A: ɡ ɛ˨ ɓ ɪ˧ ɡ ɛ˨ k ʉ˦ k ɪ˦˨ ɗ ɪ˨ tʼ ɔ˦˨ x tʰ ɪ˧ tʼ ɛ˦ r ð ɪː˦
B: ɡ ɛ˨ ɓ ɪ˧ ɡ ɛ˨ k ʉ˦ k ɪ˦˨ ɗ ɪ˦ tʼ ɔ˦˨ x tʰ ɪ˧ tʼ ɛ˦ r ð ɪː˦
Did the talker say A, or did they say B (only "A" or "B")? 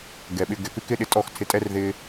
B